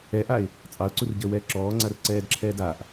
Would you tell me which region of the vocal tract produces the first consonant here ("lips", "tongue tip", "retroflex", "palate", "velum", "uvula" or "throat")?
throat